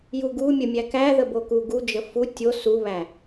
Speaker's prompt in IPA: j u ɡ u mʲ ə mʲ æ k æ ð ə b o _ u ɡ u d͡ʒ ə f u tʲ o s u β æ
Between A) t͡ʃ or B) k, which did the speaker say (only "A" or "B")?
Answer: B